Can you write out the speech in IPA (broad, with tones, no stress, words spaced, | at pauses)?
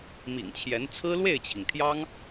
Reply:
mḭ˨˩ŋt͡ɕʰjɛ˧˥n t͡sʰɹ̩˥ lwe˥˩ɪ̯t͡ɕʰi˩ŋt̪ʰjɑ˥ŋ